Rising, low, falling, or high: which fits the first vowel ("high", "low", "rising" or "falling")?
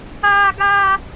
high